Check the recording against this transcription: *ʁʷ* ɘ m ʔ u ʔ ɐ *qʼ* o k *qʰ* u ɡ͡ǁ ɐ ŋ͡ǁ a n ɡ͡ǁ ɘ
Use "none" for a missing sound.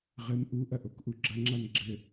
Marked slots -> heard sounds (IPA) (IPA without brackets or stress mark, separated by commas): ʁ, ʔ, ʔ